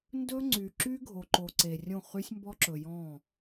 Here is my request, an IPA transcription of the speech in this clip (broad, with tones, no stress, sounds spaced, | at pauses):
n d ɵ˦ ŋ͡ǀ y˨ ǁ y˦ ɡʱ o˨ ǃ o˨ ǀ e˨ rʲ õ˦˨ χ y˦ sʲ m b ɔ˦ ǁ ɵ˨ j ɔ̃˦˨